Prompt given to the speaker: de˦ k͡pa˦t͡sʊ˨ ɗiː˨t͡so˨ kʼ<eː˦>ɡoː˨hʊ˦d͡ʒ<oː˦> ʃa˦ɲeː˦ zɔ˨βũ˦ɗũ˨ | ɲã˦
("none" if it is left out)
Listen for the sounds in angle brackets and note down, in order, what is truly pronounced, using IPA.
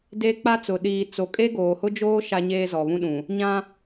e˦, oː˦

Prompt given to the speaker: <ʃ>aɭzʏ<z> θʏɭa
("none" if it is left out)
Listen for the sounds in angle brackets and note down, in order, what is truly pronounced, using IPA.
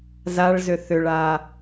z, none

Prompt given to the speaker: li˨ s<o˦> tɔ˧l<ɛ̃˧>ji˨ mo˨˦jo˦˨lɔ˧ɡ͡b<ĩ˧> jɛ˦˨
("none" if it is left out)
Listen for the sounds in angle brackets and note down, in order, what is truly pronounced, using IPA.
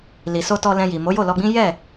o˧, ɛ̃˧, ĩ˦

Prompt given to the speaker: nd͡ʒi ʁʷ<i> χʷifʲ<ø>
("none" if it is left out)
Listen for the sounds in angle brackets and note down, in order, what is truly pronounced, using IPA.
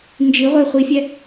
e, ɛ

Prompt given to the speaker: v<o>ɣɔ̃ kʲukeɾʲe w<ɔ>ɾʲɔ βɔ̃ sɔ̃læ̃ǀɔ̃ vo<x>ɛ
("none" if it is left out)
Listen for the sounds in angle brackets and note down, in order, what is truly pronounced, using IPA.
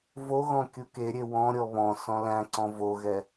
o, ɔ̃, ɣ

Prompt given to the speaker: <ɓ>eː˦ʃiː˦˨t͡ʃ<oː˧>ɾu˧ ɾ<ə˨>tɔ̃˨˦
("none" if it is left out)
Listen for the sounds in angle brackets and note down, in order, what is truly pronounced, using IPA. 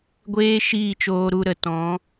ɡʷ, oː˧, ə˨

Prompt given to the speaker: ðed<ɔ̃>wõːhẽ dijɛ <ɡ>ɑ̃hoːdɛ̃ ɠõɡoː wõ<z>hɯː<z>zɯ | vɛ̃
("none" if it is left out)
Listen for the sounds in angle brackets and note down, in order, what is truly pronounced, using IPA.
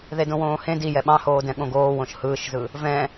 õ, ɓ, ʃ, ʃ

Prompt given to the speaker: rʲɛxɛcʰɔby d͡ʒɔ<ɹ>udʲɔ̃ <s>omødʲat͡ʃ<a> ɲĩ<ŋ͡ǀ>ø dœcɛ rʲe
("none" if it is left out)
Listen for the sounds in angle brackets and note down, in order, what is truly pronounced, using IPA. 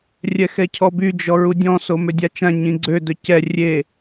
ɹ, s, ã, ɡ͡ǀ

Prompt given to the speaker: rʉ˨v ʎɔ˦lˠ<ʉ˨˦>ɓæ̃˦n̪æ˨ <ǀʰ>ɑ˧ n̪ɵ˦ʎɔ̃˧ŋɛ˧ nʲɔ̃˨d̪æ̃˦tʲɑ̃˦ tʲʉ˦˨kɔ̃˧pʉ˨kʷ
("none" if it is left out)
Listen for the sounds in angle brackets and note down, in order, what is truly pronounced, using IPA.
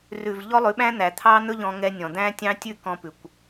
ʉ˨˦, t̪ʰ

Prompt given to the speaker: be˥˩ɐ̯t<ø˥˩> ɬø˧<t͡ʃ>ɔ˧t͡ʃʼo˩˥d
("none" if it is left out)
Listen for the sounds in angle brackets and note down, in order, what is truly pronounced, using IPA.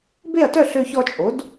œ˥˩, ç

